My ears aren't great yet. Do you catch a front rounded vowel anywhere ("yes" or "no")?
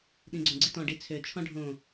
yes